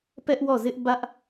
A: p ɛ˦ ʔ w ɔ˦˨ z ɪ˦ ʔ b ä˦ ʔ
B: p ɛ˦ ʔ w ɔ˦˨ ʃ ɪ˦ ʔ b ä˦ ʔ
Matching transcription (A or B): A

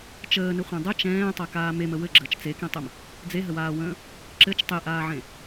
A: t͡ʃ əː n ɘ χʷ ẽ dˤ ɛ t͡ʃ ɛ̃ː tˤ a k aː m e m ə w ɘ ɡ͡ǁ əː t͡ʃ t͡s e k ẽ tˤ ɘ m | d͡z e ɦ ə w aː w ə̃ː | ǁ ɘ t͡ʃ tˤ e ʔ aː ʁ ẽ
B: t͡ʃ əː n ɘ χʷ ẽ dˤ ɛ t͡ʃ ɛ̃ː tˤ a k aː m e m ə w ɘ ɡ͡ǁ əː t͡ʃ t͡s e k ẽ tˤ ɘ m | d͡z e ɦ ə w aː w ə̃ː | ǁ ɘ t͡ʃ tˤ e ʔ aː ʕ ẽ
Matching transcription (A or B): B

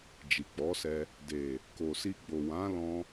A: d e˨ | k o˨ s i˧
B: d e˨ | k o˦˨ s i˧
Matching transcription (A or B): A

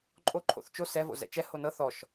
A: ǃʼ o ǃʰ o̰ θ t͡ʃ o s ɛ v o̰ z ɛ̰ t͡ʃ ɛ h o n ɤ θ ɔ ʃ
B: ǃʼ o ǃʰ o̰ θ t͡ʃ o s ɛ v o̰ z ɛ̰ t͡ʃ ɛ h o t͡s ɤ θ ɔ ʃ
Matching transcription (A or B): A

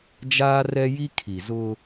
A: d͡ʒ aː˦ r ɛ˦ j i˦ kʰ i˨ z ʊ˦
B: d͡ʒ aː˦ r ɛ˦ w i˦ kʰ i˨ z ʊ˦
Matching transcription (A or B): A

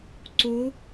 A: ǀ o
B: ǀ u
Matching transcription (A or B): A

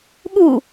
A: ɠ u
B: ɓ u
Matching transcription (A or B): A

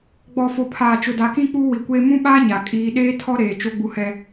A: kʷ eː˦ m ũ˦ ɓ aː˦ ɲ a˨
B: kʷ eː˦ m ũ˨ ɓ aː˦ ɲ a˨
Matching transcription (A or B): A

